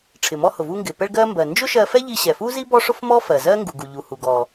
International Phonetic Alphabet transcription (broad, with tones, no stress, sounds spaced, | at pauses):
ʈ͡ʂʰ ɪ˩ m ɔ˧ h ʊ˩ v u˧ ŋ ɡ ɪ˩ p ɛ˧ ɭ ɡ ɜ˧ m b ɜ˩ n d͡ʒ ʊ˥ ʃ ɜ˧ f ɛ˥ ʎ i˧ ɕ ɛ˩ f u˥ z i˥ b ɔ˥ ʂ ʊ˥ f m ɔ˥ f ɜ˩ z ɜ˥ ŋ ɡ u˩ ɡ u˩ ʎ u˩ h u˩ ɡ ɔ˩